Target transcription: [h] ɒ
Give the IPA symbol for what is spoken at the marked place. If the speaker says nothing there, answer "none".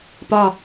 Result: p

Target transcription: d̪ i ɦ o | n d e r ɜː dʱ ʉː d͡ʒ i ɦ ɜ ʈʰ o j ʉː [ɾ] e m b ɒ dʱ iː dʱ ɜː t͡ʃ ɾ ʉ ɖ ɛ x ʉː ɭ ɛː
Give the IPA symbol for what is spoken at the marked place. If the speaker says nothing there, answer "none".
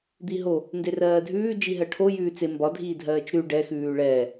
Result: t͡s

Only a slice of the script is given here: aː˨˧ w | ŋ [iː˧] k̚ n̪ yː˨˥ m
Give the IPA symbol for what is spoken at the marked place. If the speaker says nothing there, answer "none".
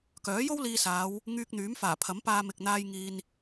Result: yː˧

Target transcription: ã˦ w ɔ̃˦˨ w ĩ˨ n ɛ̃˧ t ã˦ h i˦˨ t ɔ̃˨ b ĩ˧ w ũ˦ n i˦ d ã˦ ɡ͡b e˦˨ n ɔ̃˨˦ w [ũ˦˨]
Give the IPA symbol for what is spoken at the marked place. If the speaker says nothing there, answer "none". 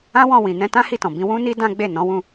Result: ũ˦˨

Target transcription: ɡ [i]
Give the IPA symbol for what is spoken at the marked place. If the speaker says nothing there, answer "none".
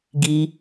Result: i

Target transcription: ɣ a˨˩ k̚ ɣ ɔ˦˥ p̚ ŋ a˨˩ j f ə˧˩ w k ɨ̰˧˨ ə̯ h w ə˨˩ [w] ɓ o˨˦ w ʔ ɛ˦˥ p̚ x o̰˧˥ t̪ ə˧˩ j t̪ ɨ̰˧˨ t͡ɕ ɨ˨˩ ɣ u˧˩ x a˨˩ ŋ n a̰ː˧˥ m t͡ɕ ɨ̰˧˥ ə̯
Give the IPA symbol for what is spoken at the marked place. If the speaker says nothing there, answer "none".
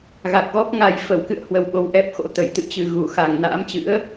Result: w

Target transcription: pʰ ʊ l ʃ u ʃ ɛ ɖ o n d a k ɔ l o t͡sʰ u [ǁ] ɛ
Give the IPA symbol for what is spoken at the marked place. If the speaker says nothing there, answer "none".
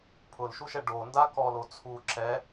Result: ǁ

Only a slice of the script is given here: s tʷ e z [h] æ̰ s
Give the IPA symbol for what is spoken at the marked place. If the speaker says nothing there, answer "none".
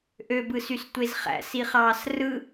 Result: χ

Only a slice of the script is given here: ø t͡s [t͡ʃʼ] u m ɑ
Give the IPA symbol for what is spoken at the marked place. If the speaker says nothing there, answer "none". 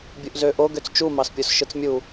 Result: t͡ʃ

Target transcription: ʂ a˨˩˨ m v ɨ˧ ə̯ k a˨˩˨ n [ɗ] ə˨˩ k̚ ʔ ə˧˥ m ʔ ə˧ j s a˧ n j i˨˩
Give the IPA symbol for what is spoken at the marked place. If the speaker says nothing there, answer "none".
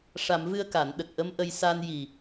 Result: ɗ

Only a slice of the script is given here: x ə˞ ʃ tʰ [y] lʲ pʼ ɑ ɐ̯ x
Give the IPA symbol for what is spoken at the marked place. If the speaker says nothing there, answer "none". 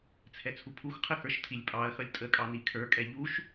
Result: i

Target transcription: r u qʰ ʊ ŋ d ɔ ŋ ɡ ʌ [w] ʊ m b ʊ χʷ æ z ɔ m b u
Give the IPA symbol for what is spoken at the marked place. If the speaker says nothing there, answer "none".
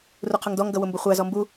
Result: w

